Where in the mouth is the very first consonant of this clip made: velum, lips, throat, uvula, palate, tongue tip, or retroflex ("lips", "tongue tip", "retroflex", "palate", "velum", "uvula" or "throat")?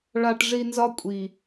retroflex